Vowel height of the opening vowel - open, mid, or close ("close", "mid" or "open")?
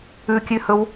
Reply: close